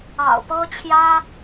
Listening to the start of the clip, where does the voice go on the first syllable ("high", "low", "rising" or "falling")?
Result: low